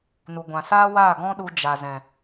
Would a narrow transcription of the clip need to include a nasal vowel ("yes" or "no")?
yes